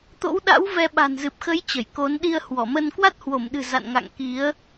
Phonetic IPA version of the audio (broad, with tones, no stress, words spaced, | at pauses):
t̪o̰˧˥wɗa̰˧˥w vɛ˧ɓa̤˨˩n zɨ˨˩p̚xə˨˦j t͡ɕə˧˩jko˨˦n ɗi˧ə̯hwɔ˧˩mə˧n kwa˦˥t̚hwo˧˩mɗɨ̤˨˩ za̰˧˨nŋa̰˧˨ŋ ki˨˦ə̯